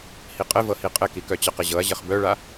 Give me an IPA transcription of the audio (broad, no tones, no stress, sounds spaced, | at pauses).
h i qʼ ɘ v ɤ h i qʼ ɘ k i k œ t͡ɕ ɤ q ɘ ʑ ɤ ɐ̯ ʑ ɘ χ b œ ɭ a